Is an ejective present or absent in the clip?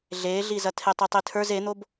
absent